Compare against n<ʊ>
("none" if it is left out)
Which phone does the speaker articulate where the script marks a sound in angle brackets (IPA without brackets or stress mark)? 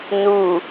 u